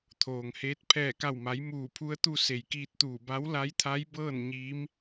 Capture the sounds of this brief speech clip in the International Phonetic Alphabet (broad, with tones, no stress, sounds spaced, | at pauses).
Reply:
t̪ʰ oː˩ ŋ h eː˧˥ t̚ pʰ ɛː˧˩ k a˧˩ w m a˩˧ j m uː˧˩ pʰ u˧˥ ə̯ t̪ u˧ s e˩ j k iː˧ t̚ t̪ uː˧˩ b a˧˥ w l a˧˥ j t̪ʰ a˧˥ j b ɤː˥˨ n ɲ iː˧˥ m